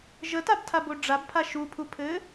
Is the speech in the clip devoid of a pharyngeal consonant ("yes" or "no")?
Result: yes